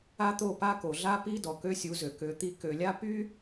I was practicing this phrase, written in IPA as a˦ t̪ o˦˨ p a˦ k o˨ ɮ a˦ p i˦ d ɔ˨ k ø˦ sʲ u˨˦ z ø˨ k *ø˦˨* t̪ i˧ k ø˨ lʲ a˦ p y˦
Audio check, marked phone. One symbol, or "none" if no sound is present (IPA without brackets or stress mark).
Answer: ø˨